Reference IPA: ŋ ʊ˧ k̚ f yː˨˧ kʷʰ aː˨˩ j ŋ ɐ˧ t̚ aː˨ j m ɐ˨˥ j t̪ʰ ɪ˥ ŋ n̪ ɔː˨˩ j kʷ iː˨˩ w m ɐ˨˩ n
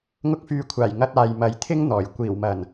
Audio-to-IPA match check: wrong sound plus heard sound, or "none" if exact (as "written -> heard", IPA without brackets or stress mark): none